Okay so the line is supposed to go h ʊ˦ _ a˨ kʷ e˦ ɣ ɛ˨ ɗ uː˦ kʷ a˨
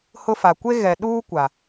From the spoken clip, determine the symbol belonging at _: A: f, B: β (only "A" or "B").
A